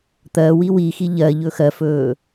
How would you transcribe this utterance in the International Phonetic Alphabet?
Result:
t̪ ɜ w i w i x i ʎ ɜ ʎ ɵ x ɜ f ɵː

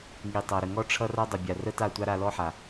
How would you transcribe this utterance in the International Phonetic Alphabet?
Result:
ŋ i˨ tˤ ʌ˨ ɾ ə˨ ŋ ɔ˦ ʈ͡ʂʰ ʌ˦ r a˦ dˤ ə˨ bʲ a˨ r ə˦ t a˦˨ tʷ a˦ ɾ a˧ l ɔ˦ ħ a˨

